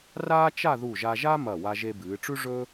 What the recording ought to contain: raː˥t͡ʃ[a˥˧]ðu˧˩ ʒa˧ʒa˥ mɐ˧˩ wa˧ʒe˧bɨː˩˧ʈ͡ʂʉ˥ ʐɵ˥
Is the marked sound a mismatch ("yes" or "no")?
no